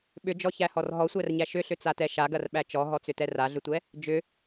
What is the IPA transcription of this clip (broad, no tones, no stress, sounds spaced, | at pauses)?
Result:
ɓ ʏ d͡ʒ ɔ ç æ h ɔ r ɦ ɔ sʷ æ r ɲ æ ʃ ʏ ɬ ʏ t͡s a t ɛ ʃ a ɡ ɐ r ɓ æ t͡ʃ ɔ ɦ ɔ t͡s ʏ t ɛ r a ɮ ʏ tʷ ɛ | d͡ʒ ʏ